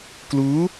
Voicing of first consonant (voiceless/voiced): voiceless